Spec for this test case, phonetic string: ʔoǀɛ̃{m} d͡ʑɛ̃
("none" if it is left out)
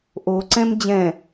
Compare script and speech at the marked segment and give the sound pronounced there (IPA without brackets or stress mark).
m